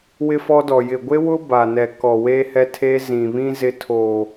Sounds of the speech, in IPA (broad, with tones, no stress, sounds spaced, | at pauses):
w ɪ˦ f ɔ˦ d ɔ˨ j ɪ˨ ɡʷ e˦ w ʊ˦ b a˨ n ɛ˨ k ɔ˨ w e˦ h ɛ˦ tʰ e˦ z ĩ˨ β ĩ˦ z ɪ˦ tʰ o˨